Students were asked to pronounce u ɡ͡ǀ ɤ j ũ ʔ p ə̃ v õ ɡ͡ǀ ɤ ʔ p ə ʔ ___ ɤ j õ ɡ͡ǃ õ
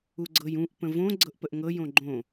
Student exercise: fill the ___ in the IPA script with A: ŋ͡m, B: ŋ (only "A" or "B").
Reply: B